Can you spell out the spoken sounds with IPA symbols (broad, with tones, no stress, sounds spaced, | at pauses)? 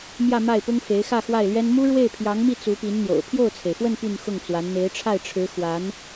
m j ä˥˧ m a˥˩ ɪ̯ p ʊ˥ ŋ f e˧˥ ɪ̯ x ä˥˧ x w a˥˩ ɪ̯ l ɥ ɛ˥ n m u˥ ɻ w e˥˩ ɪ̯ pʰ j ɑ˧˥ ŋ m i˥˩ t͡s u˧˥ p i˧˥ n n̪ j o̰˨˩ ʊ̯ pʰ j o˥˩ ʊ̯ t͡sʰ e˩ ɪ̯ f w ə˥˧ n p y˥˧ n x ʊ˥˩ ŋ t͡s w a˧˥ n n̪ e˧˥ ɪ̯ ʈ͡ʂʰ a˥˩ ɪ̯ ʈ͡ʂʰ ɻ̩˧˥ x w a˧˥ n